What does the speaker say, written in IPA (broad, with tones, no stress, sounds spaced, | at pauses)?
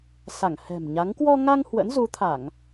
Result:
s a˧˩ ŋ h ɛ̤˨˩ m ɲ a˨˦ ŋ k w ɔ˧ ŋ a˧ ŋ h w ə̰˧˥ n z u˨˦ t̪ʰ a˧˩˨ ŋ